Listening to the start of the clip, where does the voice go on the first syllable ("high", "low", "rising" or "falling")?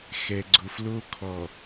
low